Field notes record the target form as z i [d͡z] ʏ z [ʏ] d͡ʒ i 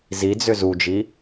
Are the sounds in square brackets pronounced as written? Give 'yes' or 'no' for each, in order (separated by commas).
yes, no